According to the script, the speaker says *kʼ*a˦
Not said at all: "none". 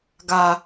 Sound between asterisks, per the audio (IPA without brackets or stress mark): ɡ